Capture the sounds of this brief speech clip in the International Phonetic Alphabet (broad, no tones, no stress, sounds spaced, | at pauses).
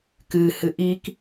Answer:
k ɨ h ɨ ʔ i k